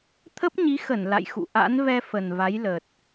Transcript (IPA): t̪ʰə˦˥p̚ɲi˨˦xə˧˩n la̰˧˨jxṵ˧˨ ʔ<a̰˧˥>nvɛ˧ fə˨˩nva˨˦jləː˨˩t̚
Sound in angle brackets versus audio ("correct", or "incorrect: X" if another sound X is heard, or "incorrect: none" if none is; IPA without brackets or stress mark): correct